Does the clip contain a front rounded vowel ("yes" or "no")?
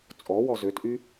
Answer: yes